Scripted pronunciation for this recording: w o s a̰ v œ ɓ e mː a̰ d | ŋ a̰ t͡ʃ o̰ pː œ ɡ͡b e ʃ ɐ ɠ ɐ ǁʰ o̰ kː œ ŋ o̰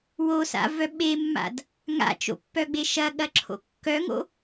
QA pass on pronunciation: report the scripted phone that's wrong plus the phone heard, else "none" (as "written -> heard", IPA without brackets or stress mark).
none